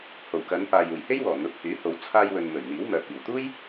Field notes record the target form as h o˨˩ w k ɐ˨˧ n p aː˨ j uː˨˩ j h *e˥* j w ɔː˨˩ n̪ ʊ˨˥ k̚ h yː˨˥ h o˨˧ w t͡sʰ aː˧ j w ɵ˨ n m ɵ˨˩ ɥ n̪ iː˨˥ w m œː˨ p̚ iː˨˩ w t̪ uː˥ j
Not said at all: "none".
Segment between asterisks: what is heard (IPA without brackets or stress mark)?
e˥